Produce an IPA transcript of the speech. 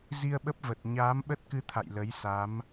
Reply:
z i˧ ə̯ ɓ ə˦˥ p̚ v ə˨˩ t̚ ɲ aː˨˦ m ɓ ə˦˥ t̚ k ɨ˧ t̪ʰ a̰˧˨ j l ə˨˦ j s a˨˦ m

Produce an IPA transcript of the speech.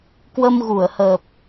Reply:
k w ə˧ m ɣ u˧˩ ə̯ h əː˨˩ p̚

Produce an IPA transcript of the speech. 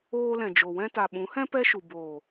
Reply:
oː˧ l ɛ̃˨ d͡ʒ o˨ w ɛ̃˧ t a˨ ɓ ũ˨˦ h ɛ̃˦ p ɛ˦ ʃ u˨ b oː˨

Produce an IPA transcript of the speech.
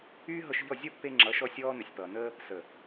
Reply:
yː˦ ɦ ɤ˧ ʃ ʎ ɔ˦˨ zʲ ʌ˦ pː e˧ ŋ͡ǁ ʌ˨˦ ʃ ɔ˧ sʲ ɔː˧ n ə˨ sʲ p ʌː˨ n əː˦ | s ə˨

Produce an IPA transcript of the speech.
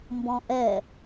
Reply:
m b ɔ̃ ʔ ɛ

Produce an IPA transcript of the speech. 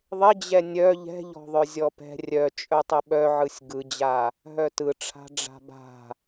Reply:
ðˤ ɪ d͡ʑ ɛ nʲ œ ʎ ɛ̤ ʎ ɔ̤ ðˤ œ zʲ ɔ p ɛ̤ rʲ œ t͡ʃʼ œ tˤ ɘ ɓ œ ʕ ɯ sʲ ɡ ɯ d͡ʑ a | ɦ œ t ɯ ʈ͡ʂʰ a̤ ɖ͡ʐ a̤ b a̤

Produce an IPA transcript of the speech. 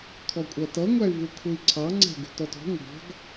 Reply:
kʰ ɔ kʷʼ ɜ t ʌ ŋʷ æ y̯ v u kʰ u i̯ ǀʰ ɑ ŋ͡ǀ æ̤ ɡ ṳ t ɔ t ɔ̤ ŋʷ ɑ̤ ɡ

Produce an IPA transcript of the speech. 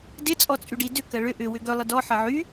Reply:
d ɪ t͡sʼ ɔ t͡sʼ y ɖ i d ʏ k ɐ ɭ ʏ ʔ ʏ w ʏ ɡ œ lˠ ɪ d ɔ ħ ɐ ʕ y

